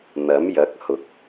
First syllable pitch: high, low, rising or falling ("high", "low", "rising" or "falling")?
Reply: rising